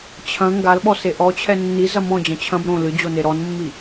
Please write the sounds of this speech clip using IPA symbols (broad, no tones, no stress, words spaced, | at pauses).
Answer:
t͡ɕʰɐ̃ ŋɡalɓɔse ʔɔt͡ɕʰɛ nːizɐ mɔ̃d͡ʑɐ̃ t͡ɕʰɐ̃b ɾõ lɨd͡ʑone ɾɔnmːi